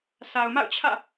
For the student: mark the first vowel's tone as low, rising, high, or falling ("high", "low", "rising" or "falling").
low